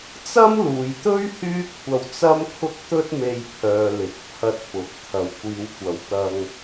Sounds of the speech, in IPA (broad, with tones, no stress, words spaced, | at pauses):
t͡sɐ˥mluː˨jt̪ɵ˥ɥ hyː˥kʷʰɐ˧wt͡sɐ˥m kʰʊ˥k̚t̪ɵ˥t̚me˧jpʰœː˨ lɪ˨˥k̚pʰɐ˧t̚pʊ˨˥k̚ t̪ʰɐ˨wkʷiː˨˧wkʷɐ˨˧w t̪ɐ˧ŋ